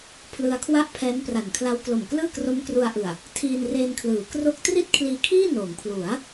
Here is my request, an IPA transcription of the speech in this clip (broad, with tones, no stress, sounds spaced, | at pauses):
pʰ l ɯ˧ a̯ kʰ w a˥˩ ʔ pʰ ɛː˦˥ n p r a˨˩ n kʰ l a˦˥ w k l o˨˩ m k l ɯː˥˩ k r o˦˥ m k r u˧ a̯ ʔ ɯ˨˩ a̯ | tʰ iː˧ n r eː˧ n kʰ l ɯː˩˦ k r o˥˩ k̚ t r i˥˩ t̚ kʰ l iː˧ kʰ iː˥˩ n oː˩˦ ŋ pʰ l u˩˦ a̯